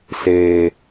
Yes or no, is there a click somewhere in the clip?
no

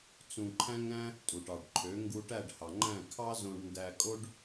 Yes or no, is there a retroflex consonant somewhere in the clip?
yes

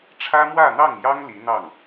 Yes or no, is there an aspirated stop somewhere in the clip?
yes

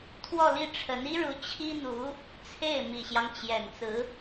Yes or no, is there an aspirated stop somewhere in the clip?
yes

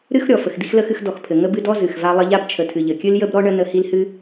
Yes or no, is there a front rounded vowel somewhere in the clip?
no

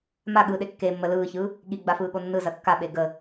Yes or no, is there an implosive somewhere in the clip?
yes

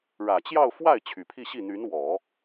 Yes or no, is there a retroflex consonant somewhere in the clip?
yes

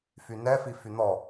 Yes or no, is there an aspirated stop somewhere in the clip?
no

